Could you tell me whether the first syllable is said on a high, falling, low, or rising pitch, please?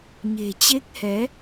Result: low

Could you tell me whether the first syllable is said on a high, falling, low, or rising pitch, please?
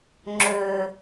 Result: low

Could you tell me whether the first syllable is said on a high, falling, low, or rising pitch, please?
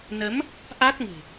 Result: rising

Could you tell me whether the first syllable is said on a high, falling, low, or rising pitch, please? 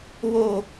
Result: high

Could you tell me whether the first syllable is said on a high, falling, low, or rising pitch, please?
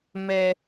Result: high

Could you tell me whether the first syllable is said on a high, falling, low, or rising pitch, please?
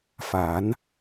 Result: rising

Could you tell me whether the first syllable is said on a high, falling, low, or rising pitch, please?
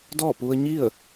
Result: falling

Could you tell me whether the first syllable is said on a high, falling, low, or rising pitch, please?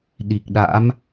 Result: low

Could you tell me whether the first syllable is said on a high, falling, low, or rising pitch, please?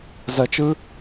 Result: low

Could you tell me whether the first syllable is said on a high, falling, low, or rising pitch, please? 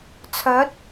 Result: rising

